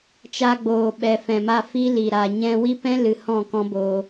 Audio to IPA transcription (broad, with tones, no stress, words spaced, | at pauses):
t͡ʃa˧ɡ͡boː˨ɓɛ˨ fɛ̃˨ma˧fi˦ li˨ɾa˨ ɲɛ̃˦ wi˦pɛ̃˦ lɨ˨ hɔ̃˦˨kɔ̃˦ boː˧